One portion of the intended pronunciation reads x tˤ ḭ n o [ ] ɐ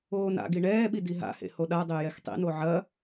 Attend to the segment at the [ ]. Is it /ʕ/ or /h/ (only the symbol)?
ʕ